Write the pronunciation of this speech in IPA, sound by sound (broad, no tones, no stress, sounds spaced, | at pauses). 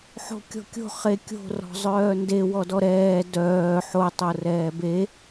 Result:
ħ o̤ kʲ ɔ̤ kʲ o̤ χ e kʲ o̤ r ɔ̤ zˤ œː n d e w ɔ d ɔ ɾ ɛː d œː ħ o tˤ o r ɛː b e